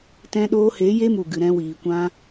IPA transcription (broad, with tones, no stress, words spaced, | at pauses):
tɛ̃˧ɗoː˧he˨˦ je˧mu˨ɡɨ˨ ɾɛ̃˧wiː˨kʷã˧